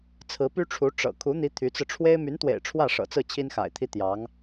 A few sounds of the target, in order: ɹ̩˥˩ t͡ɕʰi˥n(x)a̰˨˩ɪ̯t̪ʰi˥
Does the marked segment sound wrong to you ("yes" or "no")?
no